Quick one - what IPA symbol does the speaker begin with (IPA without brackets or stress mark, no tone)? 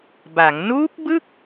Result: b